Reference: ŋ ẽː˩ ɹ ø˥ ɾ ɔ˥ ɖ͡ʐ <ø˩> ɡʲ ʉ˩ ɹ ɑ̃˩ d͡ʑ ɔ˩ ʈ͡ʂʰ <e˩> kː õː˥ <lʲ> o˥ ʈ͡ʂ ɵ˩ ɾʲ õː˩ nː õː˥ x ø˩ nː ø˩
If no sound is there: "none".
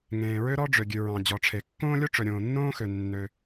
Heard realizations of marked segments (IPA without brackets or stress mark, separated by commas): ø˩, e˩, lʲ